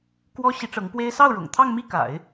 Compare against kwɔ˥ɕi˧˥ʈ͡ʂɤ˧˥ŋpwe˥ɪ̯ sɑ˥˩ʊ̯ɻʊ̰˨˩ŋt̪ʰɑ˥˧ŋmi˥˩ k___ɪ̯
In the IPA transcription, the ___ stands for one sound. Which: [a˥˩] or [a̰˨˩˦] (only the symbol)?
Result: a̰˨˩˦